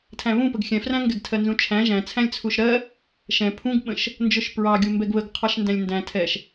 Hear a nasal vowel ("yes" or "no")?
yes